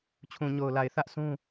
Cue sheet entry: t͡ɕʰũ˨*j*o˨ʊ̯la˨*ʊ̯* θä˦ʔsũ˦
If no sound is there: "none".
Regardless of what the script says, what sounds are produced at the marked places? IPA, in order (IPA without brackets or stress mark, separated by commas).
ɲ, ɪ̯